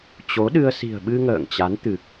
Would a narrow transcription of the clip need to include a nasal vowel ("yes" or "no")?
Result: no